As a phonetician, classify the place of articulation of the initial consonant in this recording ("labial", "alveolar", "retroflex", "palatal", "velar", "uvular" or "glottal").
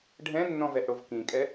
retroflex